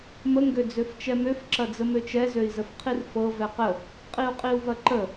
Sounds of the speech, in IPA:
m ə ŋ ɡ ø d͡z ø f t͡ʃ ɛ m ø f ǁ ɐ d͡z ə m ø t͡ʃ ɛ z ø i̯ z ə f qʰ i r f ɤ v ɛ q ə | qʼ i u̯ qʼ i u̯ v ɐ ǃ ə

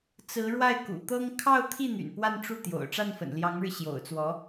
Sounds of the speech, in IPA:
t͡s ɹ̩˧˥ ɻ w a˥˩ ɪ̯ k ṵ˨˩ t̪ ɤ˥ ŋ kʰ ɑ˥˧ ʊ̯ t̪ʰ i˥˩ n̪ y̰˨˩ n p w a˥˧ n ʈ͡ʂ u˥˩ t̪ j o̰˨˩ ʊ̯ ʈ͡ʂ a˥˩ n f ə̰˨˩ n l j ɑ˧˥ ŋ ɻ ɻ̩˧ ɕ j o̰˨˩ ʊ̯ t͡s w ɔ˧˥

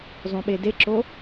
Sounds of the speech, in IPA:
zˤ õ ɓ e d e ǁ o

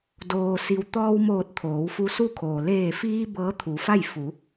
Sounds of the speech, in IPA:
d oː˩ s i˩ w t̪ ɔː˧ w m oː˧˩ t̚ t̪ʰ oː˩˧ w f u˧˥ s u˥˨ kʰ oː˩ l eː˧˩ f iː˧ b ɤː˧˥ t̪ʰ u˩˧ f a˥˨ j f u˩˧

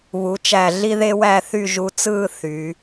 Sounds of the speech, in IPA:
β u˩˧ t͡ʃ æ˧˩ ɮ i˥ ð e˥ w æ˥˧ θ y˥˧ ʒ u˧ t͡s ɯː˥˧ θ y˩˧

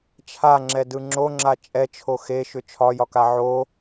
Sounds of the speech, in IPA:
t͡ʃʰ a ŋ͡ǁ ɛ d ɯ ŋ͡ǁ o ŋ͡ǁ a t͡ʃʼ ɛ t͡ʃʰ o x e ʃ ʏ t͡ʃʰ ɒ j ɒ k a ʕ o

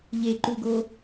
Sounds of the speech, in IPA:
ʎ e ǃ u ɡ o

